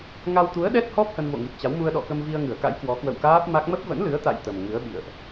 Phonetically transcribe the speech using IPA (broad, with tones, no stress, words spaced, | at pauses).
ŋa˧wt̪u˨˦ə̯ɗɛ˦˥t̚hɔ˦˥p̚ hə˧nvo̰˧˨ŋi˨˩p̚t͡ɕa˨˦w mu˧ə̯ɗɔ̰˧˨kə˧mvi˧ə̯ ŋɨ˧˩ə̯ka̰˧˥jkwɔ˨˦ kwə̰˧˨wkaː˦˥p̚ma˦˥k̚ mə˦˥p̚və̰˧˥nlɨ˨˦ə̯ t̪a̰˧˨j t̪ə˨˩mŋɨ˨˦ə̯ɓḭ˧˨ə̯ʔ